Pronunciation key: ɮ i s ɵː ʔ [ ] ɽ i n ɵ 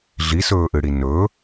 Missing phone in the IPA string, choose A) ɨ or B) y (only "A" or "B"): A